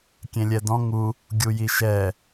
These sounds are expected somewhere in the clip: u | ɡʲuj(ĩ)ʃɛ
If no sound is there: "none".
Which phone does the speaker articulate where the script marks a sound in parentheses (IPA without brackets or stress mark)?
i